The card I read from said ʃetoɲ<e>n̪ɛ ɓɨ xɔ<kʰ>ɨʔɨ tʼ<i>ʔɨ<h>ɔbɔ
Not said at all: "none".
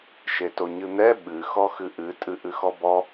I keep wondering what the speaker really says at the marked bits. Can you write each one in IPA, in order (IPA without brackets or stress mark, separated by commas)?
ɨ, x, ɨ, x